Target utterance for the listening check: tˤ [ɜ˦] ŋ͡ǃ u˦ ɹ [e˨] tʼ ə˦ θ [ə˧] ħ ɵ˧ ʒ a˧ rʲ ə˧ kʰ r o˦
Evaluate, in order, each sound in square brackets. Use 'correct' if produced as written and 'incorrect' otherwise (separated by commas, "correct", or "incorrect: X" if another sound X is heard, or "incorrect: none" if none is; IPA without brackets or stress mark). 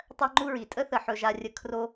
correct, incorrect: i˨, incorrect: ə˨